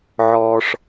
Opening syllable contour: low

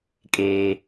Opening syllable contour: high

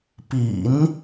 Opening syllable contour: low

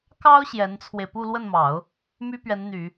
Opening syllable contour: high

